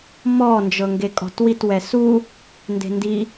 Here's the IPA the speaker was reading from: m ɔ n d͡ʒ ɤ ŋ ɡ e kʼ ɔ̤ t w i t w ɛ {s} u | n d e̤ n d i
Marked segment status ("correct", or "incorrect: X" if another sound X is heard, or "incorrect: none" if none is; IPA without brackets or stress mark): correct